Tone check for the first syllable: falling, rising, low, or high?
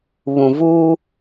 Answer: low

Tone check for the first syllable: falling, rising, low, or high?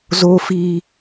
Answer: high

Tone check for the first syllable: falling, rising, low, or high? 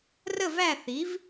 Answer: falling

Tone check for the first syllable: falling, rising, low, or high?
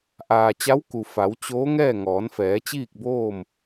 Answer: low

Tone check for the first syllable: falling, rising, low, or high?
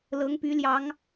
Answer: rising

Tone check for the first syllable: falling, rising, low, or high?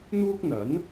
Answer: high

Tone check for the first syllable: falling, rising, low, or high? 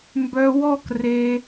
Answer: high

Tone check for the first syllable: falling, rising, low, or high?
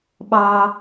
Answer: low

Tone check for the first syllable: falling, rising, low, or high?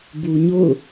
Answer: low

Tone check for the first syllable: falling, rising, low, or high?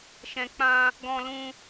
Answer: low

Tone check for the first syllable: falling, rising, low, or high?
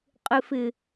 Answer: low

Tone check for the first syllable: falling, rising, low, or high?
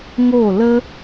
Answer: falling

